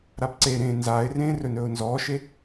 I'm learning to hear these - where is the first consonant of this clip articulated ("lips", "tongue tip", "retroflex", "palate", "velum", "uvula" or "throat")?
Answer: tongue tip